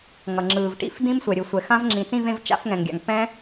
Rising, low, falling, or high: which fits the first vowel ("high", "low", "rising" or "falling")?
low